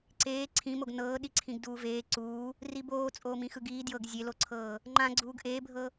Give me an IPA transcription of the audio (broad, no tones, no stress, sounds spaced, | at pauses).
ǀ eː ǀʰ ĩ m o ɡ n ɤː ɗ i ǀʰ ĩ ɡ d uː v eː ǀ uː | r i b oː t͡sʼ oː m ĩ x ɯ ɡ iː d j ɤ ɡ zʲ e l o ǀʰ ɤː | ŋ͡ǃ ã ɡ͡ǀ uː ɡ ʔ eː bʱ ɤ